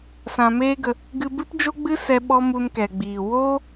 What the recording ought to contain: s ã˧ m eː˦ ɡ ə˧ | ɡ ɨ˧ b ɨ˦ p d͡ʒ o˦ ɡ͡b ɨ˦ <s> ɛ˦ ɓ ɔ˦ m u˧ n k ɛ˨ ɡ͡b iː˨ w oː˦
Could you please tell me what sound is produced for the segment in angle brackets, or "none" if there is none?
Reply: s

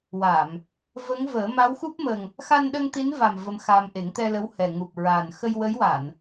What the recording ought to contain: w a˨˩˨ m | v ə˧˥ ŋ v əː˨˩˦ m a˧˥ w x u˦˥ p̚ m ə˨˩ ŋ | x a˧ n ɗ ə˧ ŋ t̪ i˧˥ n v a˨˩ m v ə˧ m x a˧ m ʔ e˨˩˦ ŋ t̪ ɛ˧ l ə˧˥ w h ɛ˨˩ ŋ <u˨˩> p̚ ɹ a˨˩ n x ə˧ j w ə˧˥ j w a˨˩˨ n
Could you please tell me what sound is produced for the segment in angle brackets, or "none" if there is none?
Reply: u˨˩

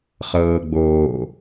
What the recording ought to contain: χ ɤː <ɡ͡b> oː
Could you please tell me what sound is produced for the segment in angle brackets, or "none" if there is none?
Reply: ɡ͡b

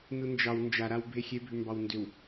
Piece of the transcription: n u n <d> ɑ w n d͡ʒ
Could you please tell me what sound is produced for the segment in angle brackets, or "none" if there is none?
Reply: d͡ʒ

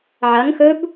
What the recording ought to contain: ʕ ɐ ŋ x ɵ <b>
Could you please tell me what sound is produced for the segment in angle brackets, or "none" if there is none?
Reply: b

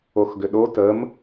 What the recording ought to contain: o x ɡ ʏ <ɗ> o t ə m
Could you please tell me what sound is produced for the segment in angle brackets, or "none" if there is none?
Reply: ɗ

